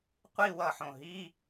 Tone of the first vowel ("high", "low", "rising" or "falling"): falling